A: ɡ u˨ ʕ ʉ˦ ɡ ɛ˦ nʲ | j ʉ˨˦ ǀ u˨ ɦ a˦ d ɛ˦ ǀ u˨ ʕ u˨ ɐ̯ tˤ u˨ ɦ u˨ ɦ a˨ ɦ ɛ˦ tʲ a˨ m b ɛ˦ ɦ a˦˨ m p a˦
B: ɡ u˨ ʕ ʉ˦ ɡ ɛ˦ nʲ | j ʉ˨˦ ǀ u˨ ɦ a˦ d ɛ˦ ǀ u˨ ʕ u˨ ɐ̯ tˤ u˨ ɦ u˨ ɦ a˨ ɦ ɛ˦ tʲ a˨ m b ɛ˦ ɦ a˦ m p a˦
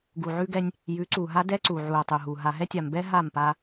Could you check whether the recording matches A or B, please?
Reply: A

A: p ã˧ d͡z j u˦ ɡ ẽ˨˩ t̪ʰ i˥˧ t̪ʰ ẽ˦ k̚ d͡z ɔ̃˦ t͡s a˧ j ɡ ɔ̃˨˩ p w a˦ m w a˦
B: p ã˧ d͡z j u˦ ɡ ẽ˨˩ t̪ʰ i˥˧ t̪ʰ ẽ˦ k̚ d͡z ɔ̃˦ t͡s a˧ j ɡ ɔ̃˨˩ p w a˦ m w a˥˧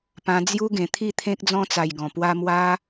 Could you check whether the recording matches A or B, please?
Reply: A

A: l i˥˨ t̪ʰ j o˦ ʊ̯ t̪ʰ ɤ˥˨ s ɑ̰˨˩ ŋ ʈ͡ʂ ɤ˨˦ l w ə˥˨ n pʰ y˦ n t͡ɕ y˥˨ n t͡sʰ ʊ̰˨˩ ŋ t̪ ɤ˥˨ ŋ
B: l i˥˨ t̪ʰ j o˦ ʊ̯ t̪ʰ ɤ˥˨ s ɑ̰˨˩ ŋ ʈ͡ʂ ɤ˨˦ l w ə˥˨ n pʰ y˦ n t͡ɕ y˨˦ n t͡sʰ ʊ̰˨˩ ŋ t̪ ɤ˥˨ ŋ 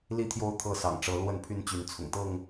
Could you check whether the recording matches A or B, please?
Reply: B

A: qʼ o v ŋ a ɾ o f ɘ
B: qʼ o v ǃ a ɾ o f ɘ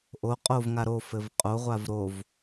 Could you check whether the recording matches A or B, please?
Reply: A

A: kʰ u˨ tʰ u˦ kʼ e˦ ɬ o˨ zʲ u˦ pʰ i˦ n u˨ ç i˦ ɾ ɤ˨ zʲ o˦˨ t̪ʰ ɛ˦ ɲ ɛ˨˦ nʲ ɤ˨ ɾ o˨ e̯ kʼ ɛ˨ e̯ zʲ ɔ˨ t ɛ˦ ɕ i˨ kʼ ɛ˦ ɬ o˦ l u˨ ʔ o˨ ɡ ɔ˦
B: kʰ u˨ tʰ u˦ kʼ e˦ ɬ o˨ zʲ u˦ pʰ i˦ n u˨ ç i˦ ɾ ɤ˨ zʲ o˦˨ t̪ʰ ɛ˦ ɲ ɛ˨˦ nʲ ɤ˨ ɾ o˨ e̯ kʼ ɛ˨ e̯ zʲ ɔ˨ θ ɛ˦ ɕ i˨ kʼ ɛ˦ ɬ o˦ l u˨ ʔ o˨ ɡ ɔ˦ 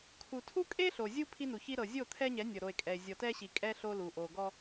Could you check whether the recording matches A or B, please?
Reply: A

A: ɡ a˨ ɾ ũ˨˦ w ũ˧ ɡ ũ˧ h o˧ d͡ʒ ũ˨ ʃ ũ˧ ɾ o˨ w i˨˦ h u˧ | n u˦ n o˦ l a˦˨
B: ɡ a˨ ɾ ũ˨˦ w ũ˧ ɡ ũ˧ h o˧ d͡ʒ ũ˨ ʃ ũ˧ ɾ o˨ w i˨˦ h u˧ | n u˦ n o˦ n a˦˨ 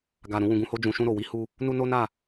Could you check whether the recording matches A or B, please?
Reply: B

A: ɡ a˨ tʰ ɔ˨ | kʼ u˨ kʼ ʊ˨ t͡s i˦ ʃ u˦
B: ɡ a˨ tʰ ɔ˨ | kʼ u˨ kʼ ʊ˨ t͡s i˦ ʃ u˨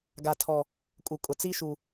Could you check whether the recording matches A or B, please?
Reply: B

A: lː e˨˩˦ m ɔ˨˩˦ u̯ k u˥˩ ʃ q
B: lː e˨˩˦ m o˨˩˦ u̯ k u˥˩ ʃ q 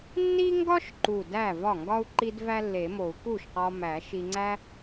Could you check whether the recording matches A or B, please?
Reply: B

